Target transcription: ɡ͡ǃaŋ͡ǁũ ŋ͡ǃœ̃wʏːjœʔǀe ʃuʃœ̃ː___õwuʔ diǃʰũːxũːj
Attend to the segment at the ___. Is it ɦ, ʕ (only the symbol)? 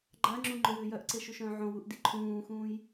ʕ